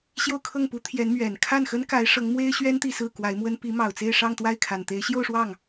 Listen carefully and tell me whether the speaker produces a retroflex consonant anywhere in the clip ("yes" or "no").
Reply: yes